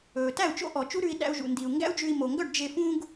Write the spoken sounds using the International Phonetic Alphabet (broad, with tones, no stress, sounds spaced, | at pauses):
ɵː˩ t æ˥˩ u̯ t͡ʃ o̰˥ ʔ ɔ˩ t͡ʃ u˥ ɾ ʉ˧ i̯ ɗ æ̰˧ u̯ ʒ ṵ˩ n d i˩ u̯ ŋ ɡ æ̰˥ u̯ d͡ʒ ʉ˧ i̯ m o˩ ŋ ɡ œ˥˩ ɖ d͡ʒ e˧ f ũ˥ ɡ